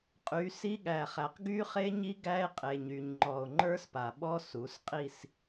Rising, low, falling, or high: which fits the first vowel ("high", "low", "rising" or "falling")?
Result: rising